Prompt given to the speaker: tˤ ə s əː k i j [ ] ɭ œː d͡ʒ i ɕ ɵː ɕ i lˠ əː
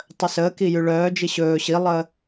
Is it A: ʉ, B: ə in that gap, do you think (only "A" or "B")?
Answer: A